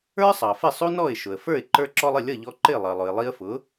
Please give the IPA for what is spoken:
ə˞˥ sˤ ɑ˩ f ɪ˥˩ sˤ u˥ n ɔ˥˩ ɪ̯ ʃ ʊ˩ ə̯ f ə˞˥˩ ɪ̯ ǃ ə˞˧ ǁ ɔ˧ lˠ ɪ˥˩ lʲ ʌ˥˩ ʎ ɔ˧ ǃ ɪ˥˩ lˠ ʌ˩ lˠ ʊ˩ ɪ̯ lˠ i˧ ə̯ f ʊ˩˥

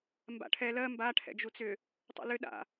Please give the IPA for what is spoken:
m b a̰ ʈʰ ɛ l ɜ m b a ʈʰ ɛ̰ d͡ʒ u t͡s ʏ | tˤ ṵ l ʏ ɗ a̰

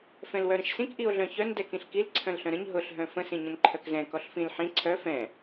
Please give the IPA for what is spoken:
f ɛ̃ l w œ ɾ ə̃ ʃ s ĩ k ʔ i o̯ ɮ œ̃ ç œ n d ɛ k ĩ ɬ k i l ǀʰ œ̃ l ɬ œ̃ ɾ ə̃ ɲ ɦ ʊ ɬ ɦ œ̃ f ə̃ s ĩ ɲ ə̃ n ǃʰ œ k z ɛ̃ k ɔ ɬ f ĩ l ħ ĩ ǀʰ œ f ɛ̃

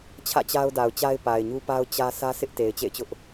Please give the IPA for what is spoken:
t͡ɕʰ ä̰˦˨ t͡ɕ a˦ ʊ̯ d a˨ ʊ̯ t͡ɕ a˦ ɪ̯ p a˨ ɪ̯ ɲ u˦ p a˦ ʊ̯ t͡ɕ ä˦ sʰ ä˦ s ɪ˦ ʔ t e˨ ɪ̯ t͡ɕ ḛ˦˨ ɪ̯ t͡ɕ ʊ˦ ʔ

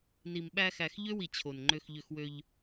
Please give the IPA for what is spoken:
n i˨ m ɓ æ˧ x æ˨ x ʎ ø˦ w i˨ t͡ɕʰ o˨ n ŋ͡ǃ ø˧ x ʎ ø˧ x w ø˧ ʎ

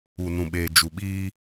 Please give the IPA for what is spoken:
u˨ n ũ˨ ɓ eː˨ d͡ʒ u˨ ɓ iː˦

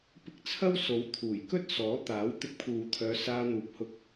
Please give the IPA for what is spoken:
p ɪ˧ k̚ t͡sʰ ɐ˥ w s o˨˥ w t̪ʰ uː˨˩ j k ɵ˥ t̚ s ɔː˨˥ t̪ aː˨˥ w t̪ ɪ˧ k̚ pʰ uː˨ t̪ʰ œː˨˧ s aː˧ n̪ uː˨˥ p̚ h ʊ˧ k̚

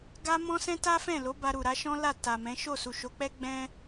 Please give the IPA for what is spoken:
ɡ a˦ m ɔ̃˦ s ɛ̃˦ t a˦ f ɛ̃˦˨ l o˨˦ b a˧ ɾ u˨ ɾ a˨˦ ʃ ɔ̃˦ l a˦˨ t a˨ m ɛ̃˨˦ ʃ o˦˨ s u˨ ʃ o˨˦ k͡p ɛ˦ ɡ͡b ɛ̃˦

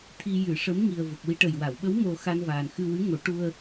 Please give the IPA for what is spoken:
t̪ʰ i˧ j ɨ˨˩˦ ʂ ə˧˥ m ŋ i˨˩ ə̯ v ə˨˩ k̚ w i˧ ʈ ə˨˩ j w a˨˩˨ w ɓ ə˧˥ w m o˧ x a˧ n v aː˨˩ n x ɨ˧ w ɨ˧˥ ŋ o˨˩˦ ʈ u˧ ə̯

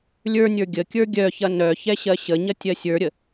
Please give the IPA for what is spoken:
lʲ ə˞ nʲ ə˞ ɡʲ ə kʲ ə˞ ɡʲ œ ç ɐ n œ ç ɛ ɕ ɜ ɕ ə ɲ ɐ tʲ ɜ sʲ ə˞ ɾʲ ə

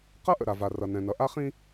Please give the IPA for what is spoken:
q ʌ˦ ʔ ə̰˨ ɾ a˨ v a˨ r ʌ˨ n ɛ̃˨ n ʌ˨ ʔ a˦ χ ĩ˦

